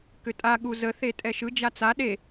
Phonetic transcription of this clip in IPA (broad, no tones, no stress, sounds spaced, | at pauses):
k ʏ tʼ a ɠ u z ə θ e tʼ ɛ ʃ ɯ d͡ʒ a t͡s a ɗ e